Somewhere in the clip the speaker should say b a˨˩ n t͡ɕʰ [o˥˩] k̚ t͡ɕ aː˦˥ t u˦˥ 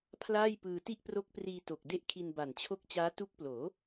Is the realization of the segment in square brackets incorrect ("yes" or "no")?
no